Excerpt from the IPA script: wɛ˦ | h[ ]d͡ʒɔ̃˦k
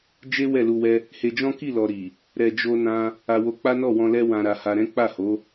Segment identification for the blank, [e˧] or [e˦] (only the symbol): e˧